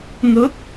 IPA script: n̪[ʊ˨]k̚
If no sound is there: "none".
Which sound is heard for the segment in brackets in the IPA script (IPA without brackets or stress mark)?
ʊ˨˥